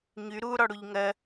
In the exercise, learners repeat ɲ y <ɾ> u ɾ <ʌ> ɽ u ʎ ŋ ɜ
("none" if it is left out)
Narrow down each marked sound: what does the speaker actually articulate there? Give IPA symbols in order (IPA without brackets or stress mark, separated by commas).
ɾ, ɔ